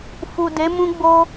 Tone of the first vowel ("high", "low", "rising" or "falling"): low